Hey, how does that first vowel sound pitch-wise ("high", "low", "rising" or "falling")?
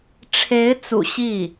rising